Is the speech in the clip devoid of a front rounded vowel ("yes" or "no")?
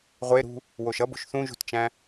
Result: yes